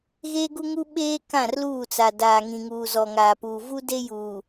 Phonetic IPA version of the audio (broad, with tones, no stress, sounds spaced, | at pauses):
ɣ eː˦ ɡ u˦ ŋ u˦ ɓ eː˦ k ã˦˨ r l uː˦˨ t͡s a˨ d aː˨ ŋ ĩ˨ ŋ uː˨ z ɔ˨ ŋ aː˨ p uː˨ v u˦ d e˦ j uː˨